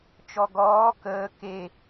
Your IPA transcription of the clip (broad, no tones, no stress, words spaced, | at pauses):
t͡ʃɔɡɔː kəː ke